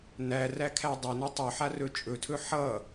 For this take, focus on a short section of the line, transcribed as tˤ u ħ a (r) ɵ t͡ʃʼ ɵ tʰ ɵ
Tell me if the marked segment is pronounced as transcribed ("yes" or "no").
yes